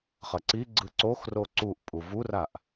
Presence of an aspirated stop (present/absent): absent